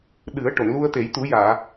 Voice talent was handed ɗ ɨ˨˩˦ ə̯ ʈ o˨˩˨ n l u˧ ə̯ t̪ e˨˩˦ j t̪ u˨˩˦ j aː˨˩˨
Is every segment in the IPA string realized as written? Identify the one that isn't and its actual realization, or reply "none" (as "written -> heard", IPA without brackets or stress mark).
none